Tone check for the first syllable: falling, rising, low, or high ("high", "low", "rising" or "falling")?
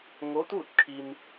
rising